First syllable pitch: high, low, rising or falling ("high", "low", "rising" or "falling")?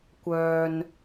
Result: low